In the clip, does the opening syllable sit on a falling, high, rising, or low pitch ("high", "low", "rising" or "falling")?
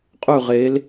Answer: falling